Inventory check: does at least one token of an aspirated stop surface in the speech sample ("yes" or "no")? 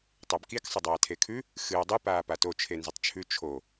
yes